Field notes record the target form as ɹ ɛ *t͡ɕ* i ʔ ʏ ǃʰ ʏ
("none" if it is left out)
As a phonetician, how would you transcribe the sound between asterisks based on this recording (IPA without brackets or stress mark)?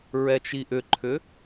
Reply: t͡ʃ